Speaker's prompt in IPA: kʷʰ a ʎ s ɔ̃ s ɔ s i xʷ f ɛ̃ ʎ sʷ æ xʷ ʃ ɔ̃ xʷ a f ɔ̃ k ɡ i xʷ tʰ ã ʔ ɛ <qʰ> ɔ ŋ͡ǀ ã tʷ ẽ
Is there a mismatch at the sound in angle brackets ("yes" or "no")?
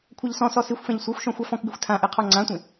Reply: no